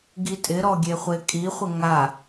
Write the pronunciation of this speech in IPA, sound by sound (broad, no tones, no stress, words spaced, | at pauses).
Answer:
ɡitʼɪɾɔ ɡʲeχʷekʼiχʷɪ ŋa